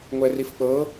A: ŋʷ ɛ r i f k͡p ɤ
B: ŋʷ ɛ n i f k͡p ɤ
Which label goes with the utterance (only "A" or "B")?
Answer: A